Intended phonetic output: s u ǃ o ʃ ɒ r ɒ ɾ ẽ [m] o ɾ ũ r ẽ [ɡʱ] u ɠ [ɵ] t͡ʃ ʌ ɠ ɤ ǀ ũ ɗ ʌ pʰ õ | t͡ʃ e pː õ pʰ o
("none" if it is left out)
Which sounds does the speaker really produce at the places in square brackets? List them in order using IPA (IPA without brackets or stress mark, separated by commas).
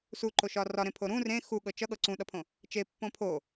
pʰ, x, ɤ